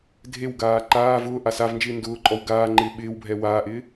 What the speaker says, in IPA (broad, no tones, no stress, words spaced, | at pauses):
dʱewɡaː ǃaː vʊː ʔasavnd͡ʒɪː ndʊːǃʼɔw ɡaː ŋ͡ǃɪːɓɪːwbʱɛ waːʔɪː